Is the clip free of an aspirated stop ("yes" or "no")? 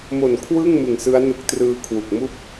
no